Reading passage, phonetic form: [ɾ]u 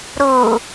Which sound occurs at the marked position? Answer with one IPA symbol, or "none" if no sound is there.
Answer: ɾ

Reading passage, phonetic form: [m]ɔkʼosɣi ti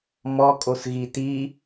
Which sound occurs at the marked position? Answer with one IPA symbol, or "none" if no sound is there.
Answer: m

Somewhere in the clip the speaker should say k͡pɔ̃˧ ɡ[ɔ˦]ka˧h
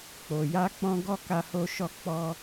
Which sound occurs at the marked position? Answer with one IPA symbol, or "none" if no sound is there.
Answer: ɔ˦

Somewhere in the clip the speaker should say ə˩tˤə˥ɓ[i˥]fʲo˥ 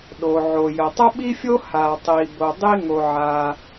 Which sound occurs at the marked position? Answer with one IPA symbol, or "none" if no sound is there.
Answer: i˥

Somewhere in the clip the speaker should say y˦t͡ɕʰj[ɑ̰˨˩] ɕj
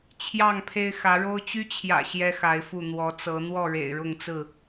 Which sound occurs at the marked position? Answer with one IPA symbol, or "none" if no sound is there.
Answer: ä̰˨˩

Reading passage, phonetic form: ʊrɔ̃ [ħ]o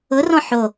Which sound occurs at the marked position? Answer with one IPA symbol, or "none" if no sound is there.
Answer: ħ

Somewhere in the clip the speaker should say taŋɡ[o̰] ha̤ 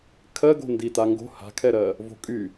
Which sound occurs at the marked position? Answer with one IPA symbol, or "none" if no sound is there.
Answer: o̤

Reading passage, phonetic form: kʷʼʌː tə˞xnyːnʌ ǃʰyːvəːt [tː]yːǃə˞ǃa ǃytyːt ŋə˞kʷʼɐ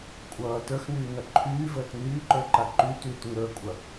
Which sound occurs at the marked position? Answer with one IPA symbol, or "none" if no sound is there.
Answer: n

